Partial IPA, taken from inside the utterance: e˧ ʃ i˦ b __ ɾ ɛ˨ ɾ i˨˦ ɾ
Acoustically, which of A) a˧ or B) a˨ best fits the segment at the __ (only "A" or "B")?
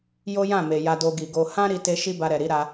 A